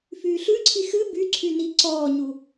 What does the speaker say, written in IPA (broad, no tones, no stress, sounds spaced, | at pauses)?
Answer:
f yː ɬ ʉ ǀʰ i x ɨ b y ǀʰ y n i ǀ ɔː ɲ u